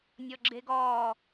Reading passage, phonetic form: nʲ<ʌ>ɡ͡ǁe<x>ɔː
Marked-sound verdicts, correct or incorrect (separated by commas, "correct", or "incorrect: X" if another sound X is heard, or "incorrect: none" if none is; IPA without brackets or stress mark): incorrect: ɔ, incorrect: ɡ